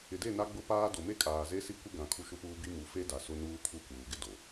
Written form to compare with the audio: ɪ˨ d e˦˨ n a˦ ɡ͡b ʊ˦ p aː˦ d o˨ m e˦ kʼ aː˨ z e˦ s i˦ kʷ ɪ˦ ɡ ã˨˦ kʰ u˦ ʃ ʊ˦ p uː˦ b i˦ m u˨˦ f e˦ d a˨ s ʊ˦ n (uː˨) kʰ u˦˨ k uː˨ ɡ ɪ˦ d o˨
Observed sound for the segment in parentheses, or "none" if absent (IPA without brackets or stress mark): uː˦